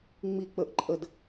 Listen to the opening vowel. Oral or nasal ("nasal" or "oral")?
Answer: oral